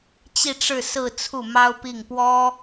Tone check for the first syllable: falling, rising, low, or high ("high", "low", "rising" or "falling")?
falling